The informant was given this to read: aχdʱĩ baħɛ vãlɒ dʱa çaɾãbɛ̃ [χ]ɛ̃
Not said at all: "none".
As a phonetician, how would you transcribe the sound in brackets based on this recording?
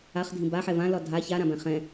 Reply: χ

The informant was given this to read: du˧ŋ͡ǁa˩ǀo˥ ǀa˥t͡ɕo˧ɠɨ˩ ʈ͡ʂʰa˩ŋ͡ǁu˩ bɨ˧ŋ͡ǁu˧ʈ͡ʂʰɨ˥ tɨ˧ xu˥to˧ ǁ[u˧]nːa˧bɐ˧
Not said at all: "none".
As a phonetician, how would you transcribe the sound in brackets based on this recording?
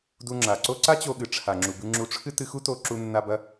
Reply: u˧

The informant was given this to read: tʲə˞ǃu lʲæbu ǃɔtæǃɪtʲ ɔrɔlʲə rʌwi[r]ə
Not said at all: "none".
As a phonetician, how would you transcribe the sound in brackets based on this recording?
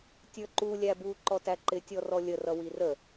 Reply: r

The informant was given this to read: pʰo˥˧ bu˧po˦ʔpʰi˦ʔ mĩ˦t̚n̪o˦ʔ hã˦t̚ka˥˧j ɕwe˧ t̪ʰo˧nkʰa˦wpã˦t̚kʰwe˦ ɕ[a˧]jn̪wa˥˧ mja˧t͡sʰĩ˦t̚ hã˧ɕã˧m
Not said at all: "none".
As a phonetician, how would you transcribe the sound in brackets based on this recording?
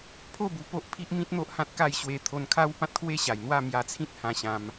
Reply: a˨˩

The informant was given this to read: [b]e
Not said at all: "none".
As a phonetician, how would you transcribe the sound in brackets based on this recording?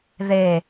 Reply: ð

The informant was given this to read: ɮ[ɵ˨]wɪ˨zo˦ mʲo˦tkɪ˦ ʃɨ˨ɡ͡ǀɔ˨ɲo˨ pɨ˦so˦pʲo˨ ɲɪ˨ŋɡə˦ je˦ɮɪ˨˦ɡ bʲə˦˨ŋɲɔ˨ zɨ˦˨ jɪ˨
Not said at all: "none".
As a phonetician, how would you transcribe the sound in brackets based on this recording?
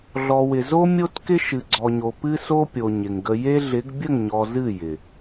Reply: ɔ˨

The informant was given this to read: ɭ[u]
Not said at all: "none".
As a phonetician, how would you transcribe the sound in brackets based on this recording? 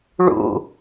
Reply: ṵ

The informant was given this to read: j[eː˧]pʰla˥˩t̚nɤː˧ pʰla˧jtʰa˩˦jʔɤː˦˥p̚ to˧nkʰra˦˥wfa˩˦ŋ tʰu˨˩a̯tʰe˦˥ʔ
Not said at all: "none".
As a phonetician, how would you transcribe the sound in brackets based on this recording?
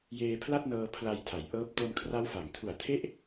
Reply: eː˧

